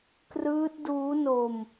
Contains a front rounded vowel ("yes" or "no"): no